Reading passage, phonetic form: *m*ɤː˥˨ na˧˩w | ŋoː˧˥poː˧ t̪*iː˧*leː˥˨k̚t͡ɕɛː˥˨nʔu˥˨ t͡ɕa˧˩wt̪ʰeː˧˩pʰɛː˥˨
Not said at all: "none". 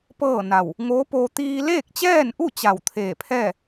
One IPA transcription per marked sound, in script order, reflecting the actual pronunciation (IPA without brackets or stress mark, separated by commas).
p, iː˧